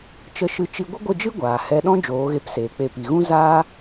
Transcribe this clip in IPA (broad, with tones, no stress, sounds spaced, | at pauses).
t͡ʃ ə˧ ʃ ɨ˧ t͡ʃ i˧ ɡʷ ə˦ ɡʷ ə˦˨ d͡ʒ ɨ˦ ɡʷ aː˨ h ɛ˧ ɗ ɔ̃˦ d͡ʒ oː˨˦ ɣ e˧ p s eː˨ k͡p e˧ p i˨ ɣ ũ˦ z aː˦